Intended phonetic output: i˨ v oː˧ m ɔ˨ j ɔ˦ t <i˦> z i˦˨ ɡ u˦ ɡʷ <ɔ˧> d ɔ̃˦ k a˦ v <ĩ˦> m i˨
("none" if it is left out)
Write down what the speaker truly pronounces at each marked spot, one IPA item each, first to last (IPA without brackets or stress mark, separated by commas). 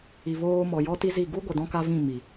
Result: i˦, ə˧, ĩ˦˨